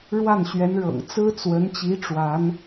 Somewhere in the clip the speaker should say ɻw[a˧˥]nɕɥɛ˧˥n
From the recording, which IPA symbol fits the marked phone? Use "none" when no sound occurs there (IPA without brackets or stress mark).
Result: a˥˩